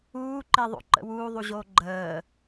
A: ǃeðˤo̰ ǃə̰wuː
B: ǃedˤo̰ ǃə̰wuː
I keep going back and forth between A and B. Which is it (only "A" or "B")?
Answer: A